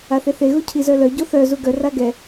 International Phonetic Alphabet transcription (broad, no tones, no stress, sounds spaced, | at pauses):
a θ e θ e ɣ u cʰ i z œ l œ ɟ o θ œ z u ɡ œ r a ɡ ɛ